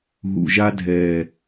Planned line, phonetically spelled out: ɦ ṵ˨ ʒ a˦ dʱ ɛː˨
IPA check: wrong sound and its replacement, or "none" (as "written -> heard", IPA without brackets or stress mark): none